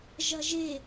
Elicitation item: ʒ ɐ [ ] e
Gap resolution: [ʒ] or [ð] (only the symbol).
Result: ʒ